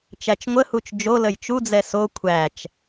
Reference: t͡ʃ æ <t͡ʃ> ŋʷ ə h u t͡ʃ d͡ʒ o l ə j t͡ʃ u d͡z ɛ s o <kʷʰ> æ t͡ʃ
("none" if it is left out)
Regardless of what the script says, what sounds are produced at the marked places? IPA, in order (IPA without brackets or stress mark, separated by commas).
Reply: t͡ʃ, kʷʰ